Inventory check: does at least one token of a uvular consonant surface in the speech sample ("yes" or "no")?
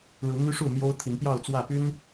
no